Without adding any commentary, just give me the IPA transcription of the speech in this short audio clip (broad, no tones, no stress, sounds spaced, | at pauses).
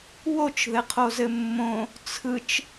w o t͡ʃ ð ɘ qʰ o z ɘ mː õ | t͡sʰ ɯ t͡ʃ